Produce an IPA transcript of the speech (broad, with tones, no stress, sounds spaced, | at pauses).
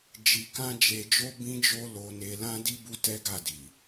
d͡ʒ i˧ k ã˦ d͡ʒ e˧ d͡ʒ o˦ b ĩ˦ d͡ʒ o˦ l o˧ n e˧ l ã˦ d i˦ b u˦ t ɛ˦ ɡ a˦˨ d i˨